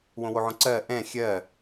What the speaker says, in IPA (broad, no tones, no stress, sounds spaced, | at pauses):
w õ w o ʕ õ ǀ ɜ ʔ ɛ̃ xʲ ɜ